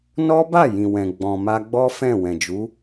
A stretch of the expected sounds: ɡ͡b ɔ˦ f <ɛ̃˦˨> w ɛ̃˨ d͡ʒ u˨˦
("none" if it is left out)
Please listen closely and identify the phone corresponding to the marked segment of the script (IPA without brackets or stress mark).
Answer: ɛ̃˦˨